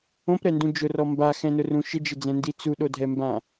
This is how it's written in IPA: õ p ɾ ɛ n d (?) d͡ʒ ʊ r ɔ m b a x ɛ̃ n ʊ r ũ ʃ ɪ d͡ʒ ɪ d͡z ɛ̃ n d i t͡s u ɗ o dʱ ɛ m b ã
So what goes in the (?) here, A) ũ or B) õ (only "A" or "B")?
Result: A